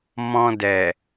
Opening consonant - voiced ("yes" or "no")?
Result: yes